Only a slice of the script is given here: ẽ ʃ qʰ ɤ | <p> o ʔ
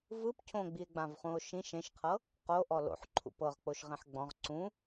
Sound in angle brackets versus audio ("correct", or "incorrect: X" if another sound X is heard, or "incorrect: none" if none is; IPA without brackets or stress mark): incorrect: q